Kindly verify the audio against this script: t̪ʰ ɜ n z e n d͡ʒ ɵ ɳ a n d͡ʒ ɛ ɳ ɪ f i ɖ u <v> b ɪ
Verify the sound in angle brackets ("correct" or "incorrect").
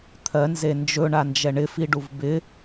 correct